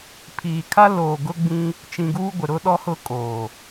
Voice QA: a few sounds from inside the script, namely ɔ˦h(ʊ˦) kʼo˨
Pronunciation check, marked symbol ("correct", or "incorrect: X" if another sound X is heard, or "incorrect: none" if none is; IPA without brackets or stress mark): correct